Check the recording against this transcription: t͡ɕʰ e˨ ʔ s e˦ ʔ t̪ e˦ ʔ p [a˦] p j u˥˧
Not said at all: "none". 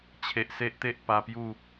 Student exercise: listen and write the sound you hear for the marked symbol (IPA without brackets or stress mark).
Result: a˧